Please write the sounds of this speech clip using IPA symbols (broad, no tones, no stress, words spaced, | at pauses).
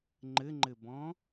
ŋ͡ǃɘŋ͡ǃɘbɔ̃